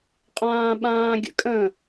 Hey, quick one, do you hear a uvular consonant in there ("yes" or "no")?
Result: yes